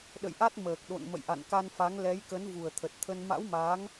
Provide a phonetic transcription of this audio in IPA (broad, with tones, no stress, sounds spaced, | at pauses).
ɗ ə̰˧˨ j ʔ a˦˥ t̚ m əː˨˩ k̚ ɗ o̰˧˨ n m ə̰˧˨ j ʔ a̰˧˨ n k a˧ n f a˨˦ ŋ l ɛ˨˦ j k ə˨˦ n v u˨˩ ə̯ t̪ʰ ə˨˩ t̚ t̪ʰ ə˧ n m a̰˧˥ w m aː˨˦ ŋ